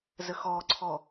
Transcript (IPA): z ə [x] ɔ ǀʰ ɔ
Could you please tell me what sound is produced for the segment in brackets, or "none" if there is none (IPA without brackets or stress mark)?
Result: x